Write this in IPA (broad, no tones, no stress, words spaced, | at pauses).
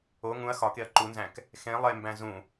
o ŋũɐ̯ xɒkeɐ̯ ǃunzæ̃k | xẽ lˠembæ̃ zũ